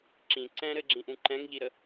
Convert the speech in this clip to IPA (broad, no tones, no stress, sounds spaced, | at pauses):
ǁ ĩ ǀ ɛ̃ ɾ ɘ ɡ͡ǁ ĩ ʔ ũ ǃ ɛ̃ ŋ ʎ i ɾ ə